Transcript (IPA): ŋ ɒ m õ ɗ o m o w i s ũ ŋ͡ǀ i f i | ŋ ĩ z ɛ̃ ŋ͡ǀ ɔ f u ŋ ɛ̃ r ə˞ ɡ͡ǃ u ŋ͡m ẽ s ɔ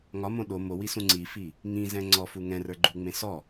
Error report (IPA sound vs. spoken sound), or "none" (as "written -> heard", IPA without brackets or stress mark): none